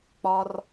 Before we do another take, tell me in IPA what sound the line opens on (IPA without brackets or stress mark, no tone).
k͡p